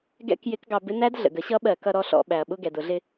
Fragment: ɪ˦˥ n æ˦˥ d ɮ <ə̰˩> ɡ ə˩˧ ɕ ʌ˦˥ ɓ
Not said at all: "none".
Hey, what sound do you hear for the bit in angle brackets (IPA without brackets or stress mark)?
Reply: ə̰˩